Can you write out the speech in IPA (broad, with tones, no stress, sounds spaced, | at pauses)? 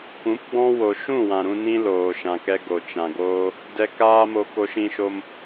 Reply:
kʷ ũ˨˦ p ɡ͡b ɔ̃˦ w o˧ ʃ ũ˦˨ w ã˨ ɾ ũ˧ n ĩ˦ l oː˨ ʃ ã˨ k ɛ˧ ɡ o˨ t͡ʃ ã˨ ɡ oː˦ | d ɛ˧ k aː˦ m o˧ k o˧ ʃ ĩ˧ ʃ o˧ m